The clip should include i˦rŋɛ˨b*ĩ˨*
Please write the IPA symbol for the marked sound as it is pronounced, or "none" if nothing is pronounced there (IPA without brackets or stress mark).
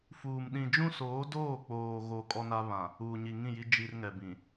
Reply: ĩ˨